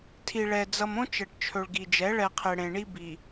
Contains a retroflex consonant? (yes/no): yes